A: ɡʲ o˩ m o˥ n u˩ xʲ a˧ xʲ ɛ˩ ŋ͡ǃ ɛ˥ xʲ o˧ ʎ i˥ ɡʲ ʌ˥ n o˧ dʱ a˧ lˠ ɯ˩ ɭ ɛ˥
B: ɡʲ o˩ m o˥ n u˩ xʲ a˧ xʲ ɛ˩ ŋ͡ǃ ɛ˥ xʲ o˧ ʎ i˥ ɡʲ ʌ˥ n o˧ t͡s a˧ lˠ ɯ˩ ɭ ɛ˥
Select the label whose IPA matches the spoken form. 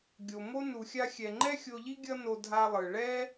A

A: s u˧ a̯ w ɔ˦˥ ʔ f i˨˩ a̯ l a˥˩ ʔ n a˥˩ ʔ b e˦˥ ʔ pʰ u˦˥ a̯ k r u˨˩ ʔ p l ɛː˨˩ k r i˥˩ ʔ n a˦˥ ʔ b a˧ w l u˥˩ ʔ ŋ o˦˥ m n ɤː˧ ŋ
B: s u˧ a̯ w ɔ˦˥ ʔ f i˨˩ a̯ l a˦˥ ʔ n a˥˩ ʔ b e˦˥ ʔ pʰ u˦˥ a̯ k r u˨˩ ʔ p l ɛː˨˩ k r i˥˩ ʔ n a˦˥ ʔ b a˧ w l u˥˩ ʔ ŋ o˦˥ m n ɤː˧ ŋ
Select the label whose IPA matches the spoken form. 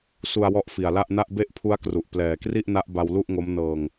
A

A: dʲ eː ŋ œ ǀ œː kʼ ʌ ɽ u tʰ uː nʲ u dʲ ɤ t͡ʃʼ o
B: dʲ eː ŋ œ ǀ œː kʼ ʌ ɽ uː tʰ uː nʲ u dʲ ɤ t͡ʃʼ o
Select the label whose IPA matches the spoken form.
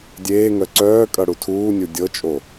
A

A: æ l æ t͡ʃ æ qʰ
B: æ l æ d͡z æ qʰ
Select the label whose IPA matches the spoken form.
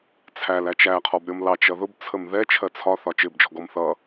A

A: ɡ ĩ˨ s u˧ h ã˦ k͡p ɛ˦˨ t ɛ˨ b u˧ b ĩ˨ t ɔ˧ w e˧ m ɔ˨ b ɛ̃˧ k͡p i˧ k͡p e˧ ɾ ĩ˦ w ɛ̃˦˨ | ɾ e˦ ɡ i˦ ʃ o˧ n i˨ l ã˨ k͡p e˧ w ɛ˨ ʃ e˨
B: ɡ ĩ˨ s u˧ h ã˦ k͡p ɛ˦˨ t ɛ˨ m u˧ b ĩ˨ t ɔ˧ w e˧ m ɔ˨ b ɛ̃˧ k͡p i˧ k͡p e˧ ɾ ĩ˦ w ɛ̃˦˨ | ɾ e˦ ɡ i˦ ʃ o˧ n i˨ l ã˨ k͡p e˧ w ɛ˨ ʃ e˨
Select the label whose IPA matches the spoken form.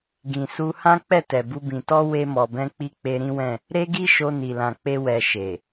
A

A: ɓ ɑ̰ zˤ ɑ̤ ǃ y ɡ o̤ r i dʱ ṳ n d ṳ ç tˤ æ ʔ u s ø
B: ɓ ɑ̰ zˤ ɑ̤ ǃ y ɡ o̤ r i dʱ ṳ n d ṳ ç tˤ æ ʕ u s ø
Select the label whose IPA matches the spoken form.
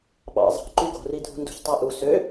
A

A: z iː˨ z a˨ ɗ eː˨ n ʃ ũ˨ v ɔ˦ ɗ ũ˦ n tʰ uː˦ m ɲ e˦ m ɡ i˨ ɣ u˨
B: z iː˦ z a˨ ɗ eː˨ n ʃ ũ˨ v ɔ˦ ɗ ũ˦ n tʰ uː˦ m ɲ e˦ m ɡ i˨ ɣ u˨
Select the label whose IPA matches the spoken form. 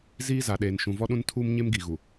B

